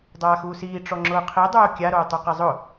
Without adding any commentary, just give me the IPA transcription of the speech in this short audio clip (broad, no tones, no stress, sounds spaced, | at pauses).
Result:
dˤ aː x uː s iː ʈ͡ʂ ɔ ŋ͡ǁ ʊː qʰ i dˤ oː kʲ a ɾ oː tˤ u q ɛ zˤ ʊ